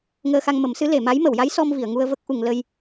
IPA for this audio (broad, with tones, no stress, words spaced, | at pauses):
ŋəː˧xa˧ŋmə˨˩˦msɨ˧˥ le˨˩˨ma˧˥j mə˨˩˨wja˧˥j sɔ˧mvi˨˩˨ə̯ ŋu˧ə̯və˦˥k̚ ʔu˨˩˨ŋ lə˧j